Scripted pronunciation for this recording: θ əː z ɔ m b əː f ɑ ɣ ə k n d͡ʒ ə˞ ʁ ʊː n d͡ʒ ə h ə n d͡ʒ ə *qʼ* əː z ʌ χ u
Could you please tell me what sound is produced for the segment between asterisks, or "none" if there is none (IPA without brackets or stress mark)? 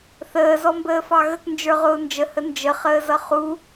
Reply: χ